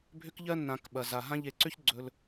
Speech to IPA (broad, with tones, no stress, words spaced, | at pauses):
bʱʏ˦kʎɜ˦ nːã˧kɓɐ˨za˨ ɦã˦ ʎe˨ǀʏ˦ç ɡ͡ǀɵ˧l